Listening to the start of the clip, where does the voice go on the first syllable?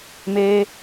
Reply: high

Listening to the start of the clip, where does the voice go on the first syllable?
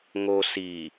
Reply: low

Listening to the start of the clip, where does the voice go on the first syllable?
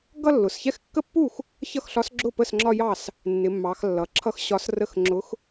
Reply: falling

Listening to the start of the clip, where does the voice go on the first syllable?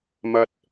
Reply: low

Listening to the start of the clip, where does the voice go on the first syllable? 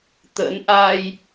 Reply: rising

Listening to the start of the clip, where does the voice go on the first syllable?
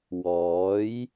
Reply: rising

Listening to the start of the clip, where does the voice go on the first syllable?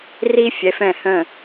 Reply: high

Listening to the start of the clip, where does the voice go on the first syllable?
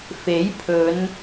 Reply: rising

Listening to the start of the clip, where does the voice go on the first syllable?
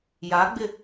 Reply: rising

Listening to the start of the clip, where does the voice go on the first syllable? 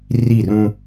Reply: falling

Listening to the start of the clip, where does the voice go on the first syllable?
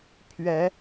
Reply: rising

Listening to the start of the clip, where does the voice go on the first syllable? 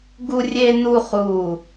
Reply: high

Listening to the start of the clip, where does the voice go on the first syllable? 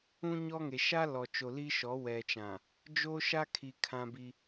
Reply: high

